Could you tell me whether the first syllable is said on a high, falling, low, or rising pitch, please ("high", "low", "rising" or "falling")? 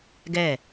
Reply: falling